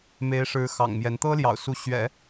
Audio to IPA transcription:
m e˧˥ ɪ̯ ʂ ɻ̩˧˥ x ɑ̰˨˩ ŋ m j ɛ˧˥ n t̪ ɤ˥ l j ɑ̰˨˩ ʊ̯ s u˧˥ ɕ ɥ ɛ̰˨˩˦

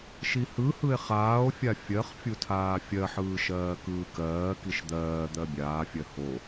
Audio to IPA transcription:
ʃ i h ɯ h ɯ e̯ χ aː o̯ fʲ a fʲ ɜ χ fʲ u tʰ aː fʲ ɜ ħ ɯː ʃ ɜː k ɯː k ɜː k i ʃ d̪ ɜː d̪ ɜ bʲ aː fʲ ɜ h o

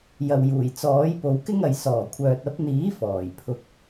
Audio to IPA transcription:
j ɐ˨ w j uː˨˩ j t͡s ɔː˨˥ j p o˨˧ w k ɪ˥ ŋ ɐ˨ j s ɔː˨˩ kʷʰ œː˨ t̚ ɐ˨˥ p̚ n̪ iː˨˥ f ɔː˨˩ j pʰ ʊ˧ k̚

